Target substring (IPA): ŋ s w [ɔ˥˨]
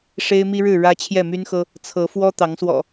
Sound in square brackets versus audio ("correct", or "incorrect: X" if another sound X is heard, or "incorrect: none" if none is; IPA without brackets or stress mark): incorrect: ɔ̰˨˩